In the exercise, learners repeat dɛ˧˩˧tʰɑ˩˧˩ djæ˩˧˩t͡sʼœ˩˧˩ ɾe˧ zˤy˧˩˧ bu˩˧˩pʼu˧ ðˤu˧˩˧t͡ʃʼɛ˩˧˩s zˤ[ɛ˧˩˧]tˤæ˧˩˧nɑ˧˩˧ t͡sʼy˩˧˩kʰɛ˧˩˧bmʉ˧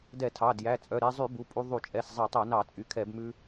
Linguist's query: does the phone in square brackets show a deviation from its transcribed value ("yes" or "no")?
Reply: yes